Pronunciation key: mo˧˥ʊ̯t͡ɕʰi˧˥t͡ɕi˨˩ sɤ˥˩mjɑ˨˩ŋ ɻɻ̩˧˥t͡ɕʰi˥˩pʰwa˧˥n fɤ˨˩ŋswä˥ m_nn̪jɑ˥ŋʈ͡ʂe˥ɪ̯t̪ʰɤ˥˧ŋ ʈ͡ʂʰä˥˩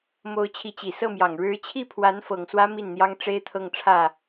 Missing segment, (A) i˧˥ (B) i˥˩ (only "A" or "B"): B